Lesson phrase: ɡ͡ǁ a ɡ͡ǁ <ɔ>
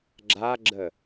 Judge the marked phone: incorrect: ə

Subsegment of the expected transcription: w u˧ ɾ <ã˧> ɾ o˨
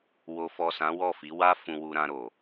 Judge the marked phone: correct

